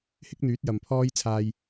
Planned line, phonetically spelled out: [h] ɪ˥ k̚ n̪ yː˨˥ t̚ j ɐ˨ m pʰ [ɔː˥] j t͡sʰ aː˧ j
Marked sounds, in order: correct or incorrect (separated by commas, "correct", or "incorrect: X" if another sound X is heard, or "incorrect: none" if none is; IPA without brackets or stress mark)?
correct, correct